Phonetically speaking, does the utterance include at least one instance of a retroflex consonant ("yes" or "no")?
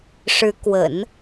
yes